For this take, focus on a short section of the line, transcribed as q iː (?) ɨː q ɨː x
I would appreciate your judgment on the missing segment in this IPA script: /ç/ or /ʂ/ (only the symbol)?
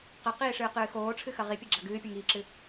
ʂ